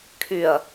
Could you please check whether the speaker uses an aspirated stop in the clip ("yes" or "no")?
yes